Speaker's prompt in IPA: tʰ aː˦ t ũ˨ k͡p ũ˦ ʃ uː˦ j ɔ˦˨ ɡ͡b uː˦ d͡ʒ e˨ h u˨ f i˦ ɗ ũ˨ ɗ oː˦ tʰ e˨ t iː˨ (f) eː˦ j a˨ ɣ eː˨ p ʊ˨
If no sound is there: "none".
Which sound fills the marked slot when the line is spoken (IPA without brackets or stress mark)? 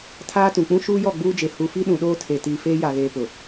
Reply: f